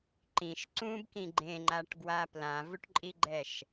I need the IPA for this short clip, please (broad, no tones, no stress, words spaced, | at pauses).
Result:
ǃĩʃ ǀũbkĩ ɡ͡ǃẽŋ͡ǃaʈɡwa plãvuʈǃʼiɡ͡ǃɛʃ